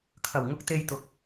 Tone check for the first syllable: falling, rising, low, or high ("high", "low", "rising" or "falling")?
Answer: low